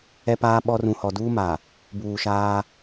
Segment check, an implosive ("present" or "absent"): present